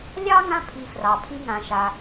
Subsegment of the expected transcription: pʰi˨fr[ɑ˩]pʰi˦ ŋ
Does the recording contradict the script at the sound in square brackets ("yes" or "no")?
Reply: no